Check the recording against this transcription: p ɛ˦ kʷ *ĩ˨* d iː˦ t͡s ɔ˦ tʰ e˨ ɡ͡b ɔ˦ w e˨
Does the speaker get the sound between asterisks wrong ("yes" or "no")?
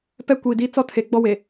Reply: yes